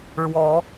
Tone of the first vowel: rising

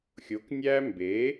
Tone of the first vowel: rising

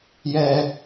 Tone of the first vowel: high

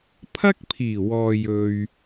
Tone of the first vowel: high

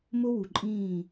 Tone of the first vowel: high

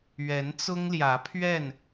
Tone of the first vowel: rising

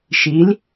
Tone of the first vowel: rising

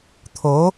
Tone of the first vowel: rising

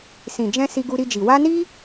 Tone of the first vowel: low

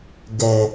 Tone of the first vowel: low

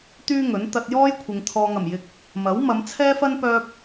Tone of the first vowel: high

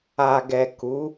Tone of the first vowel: low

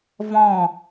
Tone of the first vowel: falling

